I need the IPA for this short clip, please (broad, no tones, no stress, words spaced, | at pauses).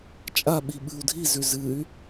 t͡ʃʼaɓi ɓɨu̯dʱizʉ zɨy̯